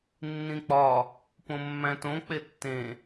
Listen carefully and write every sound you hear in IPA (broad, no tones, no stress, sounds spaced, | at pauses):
nː ĩ k͡p ɒ | p õ mː æ̃ t õ k͡p e tː ẽ